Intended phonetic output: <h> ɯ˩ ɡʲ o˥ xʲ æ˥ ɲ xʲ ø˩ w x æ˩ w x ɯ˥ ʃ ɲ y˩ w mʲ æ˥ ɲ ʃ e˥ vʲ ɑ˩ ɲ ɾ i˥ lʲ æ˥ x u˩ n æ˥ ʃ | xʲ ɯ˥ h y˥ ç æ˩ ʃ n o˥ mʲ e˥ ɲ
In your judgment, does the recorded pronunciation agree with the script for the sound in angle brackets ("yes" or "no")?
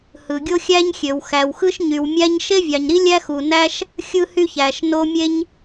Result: yes